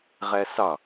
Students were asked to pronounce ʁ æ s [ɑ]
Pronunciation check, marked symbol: correct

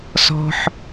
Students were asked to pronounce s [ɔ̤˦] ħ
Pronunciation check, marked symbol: correct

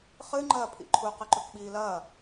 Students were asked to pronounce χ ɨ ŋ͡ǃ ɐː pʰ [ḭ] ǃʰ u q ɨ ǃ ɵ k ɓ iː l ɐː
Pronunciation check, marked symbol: correct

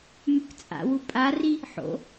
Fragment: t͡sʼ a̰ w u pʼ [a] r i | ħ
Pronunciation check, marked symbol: correct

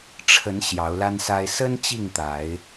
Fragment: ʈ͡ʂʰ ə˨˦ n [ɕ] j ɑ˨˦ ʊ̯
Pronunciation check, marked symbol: correct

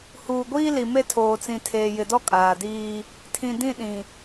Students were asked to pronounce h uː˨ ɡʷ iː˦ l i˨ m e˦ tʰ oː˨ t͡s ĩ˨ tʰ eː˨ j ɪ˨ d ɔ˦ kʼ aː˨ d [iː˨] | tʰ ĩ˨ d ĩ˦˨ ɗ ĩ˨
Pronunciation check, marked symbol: incorrect: iː˦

